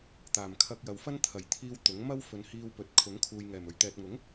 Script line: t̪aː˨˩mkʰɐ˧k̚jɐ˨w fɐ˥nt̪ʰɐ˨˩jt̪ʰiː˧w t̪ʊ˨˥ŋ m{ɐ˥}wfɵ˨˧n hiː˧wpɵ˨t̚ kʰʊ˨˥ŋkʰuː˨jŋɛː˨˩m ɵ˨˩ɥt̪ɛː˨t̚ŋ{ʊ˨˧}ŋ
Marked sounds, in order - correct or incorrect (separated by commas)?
correct, incorrect